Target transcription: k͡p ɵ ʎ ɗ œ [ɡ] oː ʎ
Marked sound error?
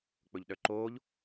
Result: yes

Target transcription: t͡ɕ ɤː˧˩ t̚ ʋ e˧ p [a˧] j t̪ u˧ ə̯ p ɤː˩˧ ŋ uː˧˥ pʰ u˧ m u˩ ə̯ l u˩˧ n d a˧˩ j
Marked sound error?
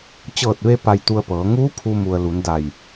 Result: no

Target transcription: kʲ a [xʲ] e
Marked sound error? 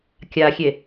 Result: no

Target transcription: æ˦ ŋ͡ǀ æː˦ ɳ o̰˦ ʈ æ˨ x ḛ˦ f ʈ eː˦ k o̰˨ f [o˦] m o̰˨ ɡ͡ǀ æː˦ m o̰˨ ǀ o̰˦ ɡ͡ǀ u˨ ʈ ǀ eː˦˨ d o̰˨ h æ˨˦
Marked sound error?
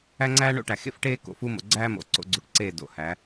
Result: yes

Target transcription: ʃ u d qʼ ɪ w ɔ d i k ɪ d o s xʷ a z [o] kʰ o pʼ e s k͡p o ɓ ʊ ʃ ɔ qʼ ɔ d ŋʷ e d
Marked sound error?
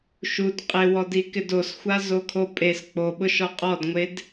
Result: no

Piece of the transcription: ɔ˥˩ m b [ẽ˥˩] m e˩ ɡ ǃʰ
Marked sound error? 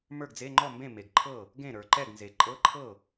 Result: no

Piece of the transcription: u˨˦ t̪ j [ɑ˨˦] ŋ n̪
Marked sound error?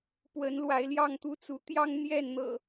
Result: yes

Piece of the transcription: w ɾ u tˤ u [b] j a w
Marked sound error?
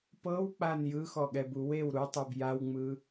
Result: no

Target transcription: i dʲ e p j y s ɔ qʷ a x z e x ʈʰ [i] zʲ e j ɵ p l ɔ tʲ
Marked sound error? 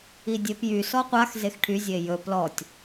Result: yes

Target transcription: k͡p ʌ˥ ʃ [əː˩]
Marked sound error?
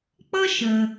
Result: no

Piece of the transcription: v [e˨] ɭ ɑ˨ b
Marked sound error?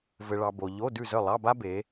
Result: yes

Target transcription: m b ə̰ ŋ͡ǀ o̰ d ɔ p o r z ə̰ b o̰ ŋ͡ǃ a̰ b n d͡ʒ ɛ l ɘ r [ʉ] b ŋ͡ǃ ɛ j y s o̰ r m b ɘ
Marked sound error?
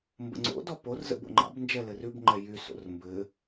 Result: no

